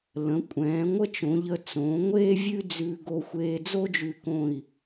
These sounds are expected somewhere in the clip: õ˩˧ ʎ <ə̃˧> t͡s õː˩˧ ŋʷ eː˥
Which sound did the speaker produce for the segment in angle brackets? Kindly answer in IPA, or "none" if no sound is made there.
ə˧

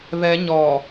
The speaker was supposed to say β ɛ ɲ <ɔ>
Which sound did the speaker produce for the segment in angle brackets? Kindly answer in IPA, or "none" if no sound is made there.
ɔ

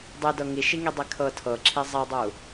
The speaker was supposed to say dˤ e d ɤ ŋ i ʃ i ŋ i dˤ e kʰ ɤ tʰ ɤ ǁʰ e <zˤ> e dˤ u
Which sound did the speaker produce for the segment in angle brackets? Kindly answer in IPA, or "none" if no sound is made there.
zˤ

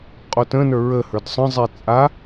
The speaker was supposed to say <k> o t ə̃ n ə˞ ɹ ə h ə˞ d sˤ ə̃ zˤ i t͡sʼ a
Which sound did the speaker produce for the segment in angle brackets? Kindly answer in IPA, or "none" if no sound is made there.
qʼ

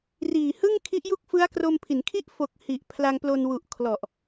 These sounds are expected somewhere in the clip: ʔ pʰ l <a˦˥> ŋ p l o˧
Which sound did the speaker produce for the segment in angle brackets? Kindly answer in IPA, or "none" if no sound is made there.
a˧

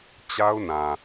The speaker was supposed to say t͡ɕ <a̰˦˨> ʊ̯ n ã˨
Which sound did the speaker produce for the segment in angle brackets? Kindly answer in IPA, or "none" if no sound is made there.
a˦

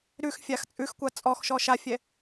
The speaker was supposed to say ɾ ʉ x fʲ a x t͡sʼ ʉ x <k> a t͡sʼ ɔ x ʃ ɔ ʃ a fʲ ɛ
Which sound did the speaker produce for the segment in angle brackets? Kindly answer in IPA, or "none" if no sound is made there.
kʷ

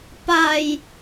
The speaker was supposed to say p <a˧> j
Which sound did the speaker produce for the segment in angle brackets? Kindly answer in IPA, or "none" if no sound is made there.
a˧˩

